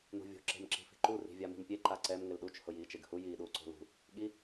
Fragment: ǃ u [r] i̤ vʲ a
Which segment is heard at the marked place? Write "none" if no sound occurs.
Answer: r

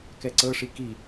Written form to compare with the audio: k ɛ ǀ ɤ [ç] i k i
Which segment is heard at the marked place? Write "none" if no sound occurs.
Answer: ʂ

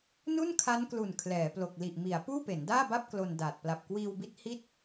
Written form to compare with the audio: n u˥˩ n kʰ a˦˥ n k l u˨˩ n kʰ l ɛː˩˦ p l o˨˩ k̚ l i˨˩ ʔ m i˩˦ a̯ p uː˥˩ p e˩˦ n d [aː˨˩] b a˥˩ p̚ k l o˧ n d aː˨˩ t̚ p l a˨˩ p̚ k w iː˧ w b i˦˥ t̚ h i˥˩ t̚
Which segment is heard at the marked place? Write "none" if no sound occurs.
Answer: aː˥˩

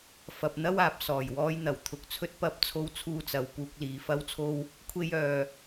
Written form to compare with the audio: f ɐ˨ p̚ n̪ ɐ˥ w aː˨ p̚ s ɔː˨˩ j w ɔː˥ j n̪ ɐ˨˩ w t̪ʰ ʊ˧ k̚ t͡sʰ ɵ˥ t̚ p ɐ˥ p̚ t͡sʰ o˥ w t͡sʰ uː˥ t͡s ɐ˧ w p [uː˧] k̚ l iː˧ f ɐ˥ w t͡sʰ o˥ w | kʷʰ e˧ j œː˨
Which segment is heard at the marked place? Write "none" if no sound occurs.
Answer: uː˥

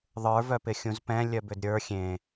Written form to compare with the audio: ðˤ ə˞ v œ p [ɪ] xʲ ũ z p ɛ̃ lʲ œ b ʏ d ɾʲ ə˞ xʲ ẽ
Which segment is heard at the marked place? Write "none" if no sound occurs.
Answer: ɪ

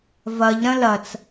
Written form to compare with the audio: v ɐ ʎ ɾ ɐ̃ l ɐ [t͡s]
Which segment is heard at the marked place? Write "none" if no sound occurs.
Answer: t͡s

